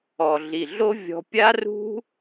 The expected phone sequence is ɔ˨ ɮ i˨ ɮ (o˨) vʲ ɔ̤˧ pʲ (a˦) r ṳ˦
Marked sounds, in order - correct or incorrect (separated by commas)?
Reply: incorrect, correct